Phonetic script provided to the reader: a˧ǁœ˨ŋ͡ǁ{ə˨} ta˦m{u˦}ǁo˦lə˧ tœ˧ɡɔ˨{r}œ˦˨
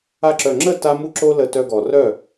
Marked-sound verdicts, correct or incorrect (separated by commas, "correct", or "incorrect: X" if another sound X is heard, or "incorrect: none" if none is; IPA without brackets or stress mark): incorrect: ə˦˨, correct, correct